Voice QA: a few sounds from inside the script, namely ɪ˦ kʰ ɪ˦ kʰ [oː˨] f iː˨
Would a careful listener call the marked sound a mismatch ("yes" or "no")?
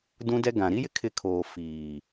no